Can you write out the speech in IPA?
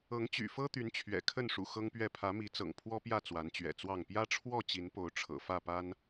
ɤ˨˦ ŋ t͡ɕ y̰˨˩ f ɤ˦ t̪ y˨˦ n t͡ɕʰ ɥ ɛ̰˨˩ kʰ ə˥˨ n ʂ ṵ˨˩ x ɤ˦ ŋ p ɥ ɛ˥˨ pʰ ä˨˦ m i˨˦ t͡s ɤ̰˨˩ ŋ pʰ w ɔ˦ p j ä˥˨ t͡s w a˨˦ n t͡ɕ ɥ ɛ̰˨˩ t͡s w ɑ˥˨ ŋ p j ä˦ ʈ͡ʂʰ w ɔ˥˨ t͡ɕ i˨˦ n p o˨˦ ʊ̯ ʈ͡ʂʰ ɤ̰˨˩ f ä˥˨ p a˦ n

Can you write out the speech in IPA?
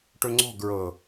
ʈ ɵ ŋ͡ǀ ɔ̤ ɡ ɹ ɤ

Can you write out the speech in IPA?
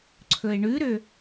ǀʰ ɵ e̯ ɳ ʉ ɾ ø

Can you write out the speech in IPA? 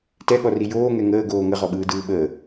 t ɛ ɠ ɔ r i j oː ŋ ɛ ŋ əː ɡ oː ŋ ə ʁ ɔ ɓ ɯː d ɯː ɓ əː

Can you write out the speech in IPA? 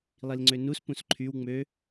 lˠ i l ŋ͡ǀ ø n u s p ũ s ǃʰ y w ŋ͡m ø

